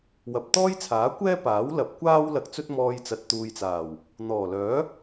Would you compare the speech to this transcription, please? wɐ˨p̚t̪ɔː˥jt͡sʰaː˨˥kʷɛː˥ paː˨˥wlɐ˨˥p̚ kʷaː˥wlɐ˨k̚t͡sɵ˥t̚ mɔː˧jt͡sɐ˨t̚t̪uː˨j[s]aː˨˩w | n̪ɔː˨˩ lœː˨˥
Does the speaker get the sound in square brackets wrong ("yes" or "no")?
yes